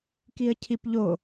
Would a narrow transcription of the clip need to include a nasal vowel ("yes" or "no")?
no